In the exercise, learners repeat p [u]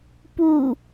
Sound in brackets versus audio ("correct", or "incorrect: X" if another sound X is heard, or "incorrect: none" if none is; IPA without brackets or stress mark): correct